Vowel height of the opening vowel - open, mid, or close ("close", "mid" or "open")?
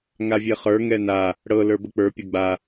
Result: open